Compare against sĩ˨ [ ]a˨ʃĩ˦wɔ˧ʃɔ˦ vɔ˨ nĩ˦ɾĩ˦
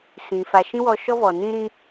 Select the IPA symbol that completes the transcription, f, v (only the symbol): f